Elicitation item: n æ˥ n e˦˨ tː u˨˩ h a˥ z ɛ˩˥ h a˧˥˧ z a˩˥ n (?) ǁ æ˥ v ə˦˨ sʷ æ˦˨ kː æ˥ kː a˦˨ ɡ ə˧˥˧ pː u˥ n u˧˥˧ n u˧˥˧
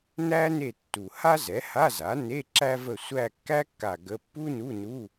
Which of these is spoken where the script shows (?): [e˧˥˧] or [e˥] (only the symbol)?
e˧˥˧